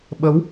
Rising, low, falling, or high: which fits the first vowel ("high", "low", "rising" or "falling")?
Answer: rising